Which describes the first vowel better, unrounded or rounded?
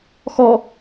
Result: rounded